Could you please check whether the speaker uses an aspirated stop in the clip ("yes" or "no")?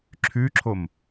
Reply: yes